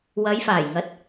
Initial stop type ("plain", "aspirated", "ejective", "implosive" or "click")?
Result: plain